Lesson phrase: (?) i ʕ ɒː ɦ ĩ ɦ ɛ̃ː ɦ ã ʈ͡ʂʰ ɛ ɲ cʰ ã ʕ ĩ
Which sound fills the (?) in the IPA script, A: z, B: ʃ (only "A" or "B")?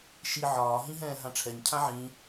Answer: B